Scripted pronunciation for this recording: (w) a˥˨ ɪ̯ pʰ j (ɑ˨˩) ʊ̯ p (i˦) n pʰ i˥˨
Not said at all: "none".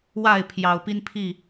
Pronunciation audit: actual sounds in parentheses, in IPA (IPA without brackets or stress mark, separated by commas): w, ɑ˨˩, i˦